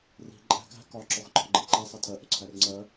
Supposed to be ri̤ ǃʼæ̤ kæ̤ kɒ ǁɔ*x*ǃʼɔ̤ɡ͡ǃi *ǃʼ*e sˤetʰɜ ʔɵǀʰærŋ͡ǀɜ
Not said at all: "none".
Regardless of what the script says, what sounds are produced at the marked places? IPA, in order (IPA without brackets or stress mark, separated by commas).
x, ǃ